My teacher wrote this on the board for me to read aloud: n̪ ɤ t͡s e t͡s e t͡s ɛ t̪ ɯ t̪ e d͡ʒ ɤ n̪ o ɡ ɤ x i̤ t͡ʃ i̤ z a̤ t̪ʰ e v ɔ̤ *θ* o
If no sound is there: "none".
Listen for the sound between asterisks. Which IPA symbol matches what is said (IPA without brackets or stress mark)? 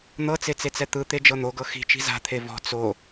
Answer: t͡s